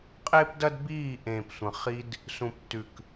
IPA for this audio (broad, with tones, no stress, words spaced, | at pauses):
qʼeː˦pdɐ˦d biː˦˨ ʔẽː˨psʷɐ̃˨χi˧d | sũ˨ptːʉ˨k